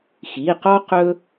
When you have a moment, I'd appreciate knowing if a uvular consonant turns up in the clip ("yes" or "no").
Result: yes